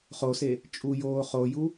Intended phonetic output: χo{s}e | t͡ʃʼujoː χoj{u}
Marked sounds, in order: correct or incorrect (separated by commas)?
correct, correct